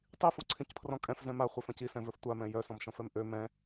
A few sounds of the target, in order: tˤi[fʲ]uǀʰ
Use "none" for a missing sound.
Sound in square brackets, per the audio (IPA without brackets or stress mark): f